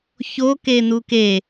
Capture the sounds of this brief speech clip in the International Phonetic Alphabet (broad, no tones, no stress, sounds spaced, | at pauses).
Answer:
ç o k e n u k e